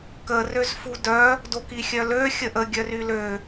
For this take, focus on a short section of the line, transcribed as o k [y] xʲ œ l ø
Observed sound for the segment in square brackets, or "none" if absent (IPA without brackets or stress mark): i